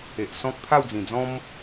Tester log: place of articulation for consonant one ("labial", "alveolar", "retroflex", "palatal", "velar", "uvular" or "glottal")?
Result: glottal